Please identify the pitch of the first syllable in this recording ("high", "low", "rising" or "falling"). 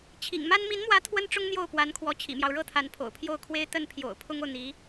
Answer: low